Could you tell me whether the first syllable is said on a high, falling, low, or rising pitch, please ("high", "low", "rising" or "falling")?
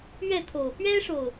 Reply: falling